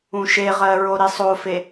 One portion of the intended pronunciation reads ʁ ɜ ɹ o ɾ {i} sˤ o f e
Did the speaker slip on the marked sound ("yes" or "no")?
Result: no